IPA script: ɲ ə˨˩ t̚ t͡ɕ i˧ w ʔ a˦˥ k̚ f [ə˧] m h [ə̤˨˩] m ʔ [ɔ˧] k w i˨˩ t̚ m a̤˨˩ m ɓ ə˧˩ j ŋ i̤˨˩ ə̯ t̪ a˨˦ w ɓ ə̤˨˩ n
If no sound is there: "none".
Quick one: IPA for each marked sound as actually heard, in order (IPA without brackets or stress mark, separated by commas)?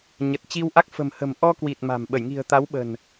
ə̤˨˩, ə̤˨˩, ɔ˧